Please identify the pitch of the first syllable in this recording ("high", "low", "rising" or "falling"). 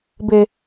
low